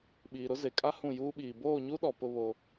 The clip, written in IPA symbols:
ɓ iː˨ ɾ ʊ˦ z e˨ kʼ a˦ h ũ˦˨ j uː˦ ɓ iː˨ b oː˦˨ ɲ u˦ ɗ ɔ˨ p ʊ˦ β o˦

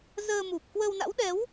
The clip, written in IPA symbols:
z əː˧ m u˨˩ p̚ k w ə˧ w n a̰˧˥ w ɗ ɛ˨˦ w

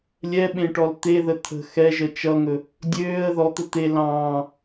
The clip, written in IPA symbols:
lʲ ɛ ɓ ẽ ʈ ɔ l t̪ e ð ə t̪ʰ ə̤ x ɛ ʒ ə t͡ʃ ʌ ŋ ɵ | dʲ øː ə̯ ð ɔ t̪ ə t̪ e l ɑ̃ː

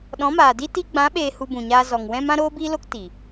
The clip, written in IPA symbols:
ɗ ɔ̃˨˦ m aː˨ d i˦ t i˧ ɡ͡b ã˨˦ ɓ eː˧ h u˧ b ũ˨ ɲ aː˧ z ɔ˨ ŋ w ɛ̃˧ m ã˧ ɾ oː˧ b iː˧ l o˧ k t i˨

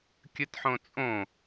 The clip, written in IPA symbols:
kʲ ɯ t ħ õ t͡sʼ õ

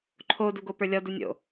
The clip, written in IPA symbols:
ǃʰ o d u ɡ o p ə˞ lʲ ɔ d u nʲ o̰

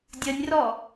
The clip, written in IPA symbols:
dʲ ə nʲ r ɔ

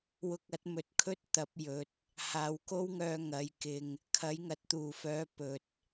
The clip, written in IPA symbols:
w ʊ˧ k̚ ɐ˨˥ t̚ m ɵ˨ t̚ kʰ ɵ˥ t̚ t̪ ɐ˨˥ p̚ j ɵ˨˥ t̚ | h aː˨ w k o˥ w ŋ œː˧ ŋ ɐ˨˥ j k ɪ˧ ŋ | kʰ ɐ˨˥ j ŋ ɐ˨˥ t̚ t̪ uː˨˩ f œː˨˥ p ɵ˨ t̚

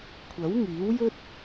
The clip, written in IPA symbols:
kʷʰ ɐ˨˥ w ŋ iː˨˥ w j ɵ˥ t̚

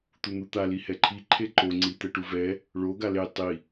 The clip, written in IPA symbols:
t̪ u n̪ u t̪ a l i h ɛ ǃʰ i ǃʰ e ǃ o ŋ͡ǀ i t̪ ɛ ʈ u v ɛ | ɭ o ɡ a l e tˤ i

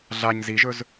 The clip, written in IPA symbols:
ɮ a ɲ z i ʒ ɵ z

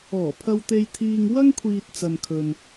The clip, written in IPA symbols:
ɔː˨˩ pʰ ɐ˧ w t̪ e˧ j t̪ʰ iː˧ ŋ w ɐ˥ ŋ kʷʰ iː˨ t̚ t͡s ɐ˨ n kʰ ɵ˨ n

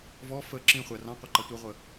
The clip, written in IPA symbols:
v ɔ f ə ǁ ĩ χʷ æ r ɑ̃ qʷ ɑ ǃ ɑ tʷ ə ʁʷ ə

